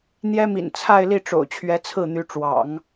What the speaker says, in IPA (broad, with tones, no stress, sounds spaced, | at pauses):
n̪ j ɛ˥ m ḭ˨˩ n t͡sʰ a˥˧ ɪ̯ l i˥˩ ʈ͡ʂ o̰˨˩ ʊ̯ t͡ɕʰ ɥ ɛ˧˥ t͡sʰ ɹ̩˥˩ n̪ y˧˥ ʈ͡ʂ w ɑ̰˨˩˦ ŋ